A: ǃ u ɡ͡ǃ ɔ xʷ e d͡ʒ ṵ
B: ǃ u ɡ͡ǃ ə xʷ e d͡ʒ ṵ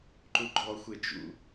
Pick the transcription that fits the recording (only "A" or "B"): A